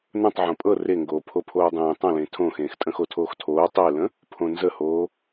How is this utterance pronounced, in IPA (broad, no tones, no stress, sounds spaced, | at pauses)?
n ə̃ tˤ ʕ õ pʼ ɤ r e ŋ ɡ oː pʰ o pʰ oː dˤ ẽː tˤ ə̃ l ẽ tʰ õ x ẽː x tʼ ə̃ x o tʰ oː x tʰ oː tˤ e l ə̃ | pʰ õ n z ə h oː